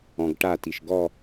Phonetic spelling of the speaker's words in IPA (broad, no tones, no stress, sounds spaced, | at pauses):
ɔ̃ ɡ ʈ a t i ʃ ɡ ɔ